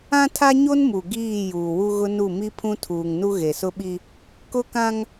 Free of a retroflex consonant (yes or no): yes